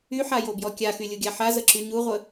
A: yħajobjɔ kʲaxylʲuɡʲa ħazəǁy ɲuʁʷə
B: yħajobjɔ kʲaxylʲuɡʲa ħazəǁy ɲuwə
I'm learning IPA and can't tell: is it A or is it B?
A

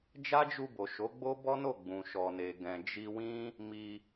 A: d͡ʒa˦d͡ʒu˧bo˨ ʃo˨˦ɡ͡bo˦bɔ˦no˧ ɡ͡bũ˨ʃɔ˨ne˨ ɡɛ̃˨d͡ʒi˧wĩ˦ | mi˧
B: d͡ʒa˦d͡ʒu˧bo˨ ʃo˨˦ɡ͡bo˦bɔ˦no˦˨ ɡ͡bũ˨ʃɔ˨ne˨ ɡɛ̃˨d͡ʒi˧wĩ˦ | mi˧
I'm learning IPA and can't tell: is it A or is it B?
B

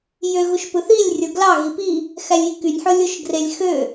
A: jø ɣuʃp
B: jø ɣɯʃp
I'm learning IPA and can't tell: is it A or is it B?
A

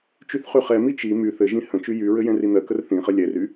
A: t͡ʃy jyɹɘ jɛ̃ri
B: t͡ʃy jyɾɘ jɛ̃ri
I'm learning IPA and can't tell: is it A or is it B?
A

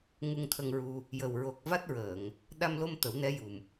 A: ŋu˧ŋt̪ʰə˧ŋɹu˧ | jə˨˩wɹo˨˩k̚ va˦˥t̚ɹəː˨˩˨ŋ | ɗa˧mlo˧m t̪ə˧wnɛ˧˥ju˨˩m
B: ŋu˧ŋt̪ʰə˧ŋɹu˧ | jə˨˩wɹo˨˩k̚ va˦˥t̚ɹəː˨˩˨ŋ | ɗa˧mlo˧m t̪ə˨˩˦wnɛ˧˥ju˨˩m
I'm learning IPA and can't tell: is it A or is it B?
B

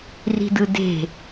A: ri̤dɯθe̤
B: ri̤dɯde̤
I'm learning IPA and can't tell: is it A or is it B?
B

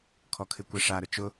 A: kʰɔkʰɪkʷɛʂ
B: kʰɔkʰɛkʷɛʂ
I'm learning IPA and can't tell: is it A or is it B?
A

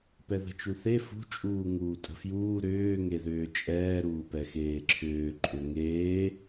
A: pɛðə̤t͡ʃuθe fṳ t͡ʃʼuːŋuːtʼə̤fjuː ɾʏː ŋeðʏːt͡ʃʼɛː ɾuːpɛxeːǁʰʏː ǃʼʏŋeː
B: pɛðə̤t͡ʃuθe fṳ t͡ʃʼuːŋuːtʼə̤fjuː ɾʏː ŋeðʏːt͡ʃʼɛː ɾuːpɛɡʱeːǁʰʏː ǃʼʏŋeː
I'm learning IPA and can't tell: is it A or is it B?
A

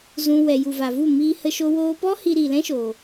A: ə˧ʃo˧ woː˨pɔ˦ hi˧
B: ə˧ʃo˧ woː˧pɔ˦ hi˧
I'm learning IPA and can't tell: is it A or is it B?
B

